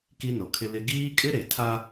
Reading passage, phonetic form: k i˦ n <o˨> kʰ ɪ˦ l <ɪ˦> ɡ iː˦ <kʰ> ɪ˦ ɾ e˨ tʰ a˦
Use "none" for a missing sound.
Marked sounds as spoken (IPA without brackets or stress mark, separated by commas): o˨, ɪ˦, kʼ